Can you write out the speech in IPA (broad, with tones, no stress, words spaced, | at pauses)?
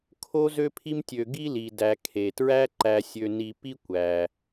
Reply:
kʰo˦ zø˦pʰi˦mtʲø˨ ɡi˦li˩dæ˩ kʰe˩ tɹæ˦ǃæ˨sʲø˨ni˨ pi˥kʷæ˩